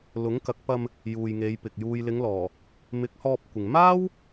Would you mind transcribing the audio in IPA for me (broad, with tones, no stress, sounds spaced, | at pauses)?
l ʊ˨˥ ŋ k ɐ˨˥ k̚ p ɐ˧ m | j uː˨ j ŋ e˨˧ j p ɪ˨ k̚ j uː˨ j l ɪ˨˧ ŋ l ɔː˨˩ | m ɪ˨˥ k̚ h ɔː˧ p̚ kʷ ɪ˨ ŋ m aː˥ w